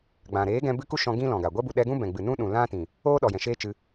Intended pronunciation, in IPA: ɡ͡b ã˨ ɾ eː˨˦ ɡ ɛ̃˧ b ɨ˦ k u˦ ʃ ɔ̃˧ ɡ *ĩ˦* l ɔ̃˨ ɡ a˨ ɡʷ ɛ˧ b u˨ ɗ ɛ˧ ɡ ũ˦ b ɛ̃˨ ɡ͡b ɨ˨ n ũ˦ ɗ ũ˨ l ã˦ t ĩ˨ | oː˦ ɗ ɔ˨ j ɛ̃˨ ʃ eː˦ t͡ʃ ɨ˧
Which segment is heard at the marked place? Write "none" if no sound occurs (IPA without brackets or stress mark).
ĩ˦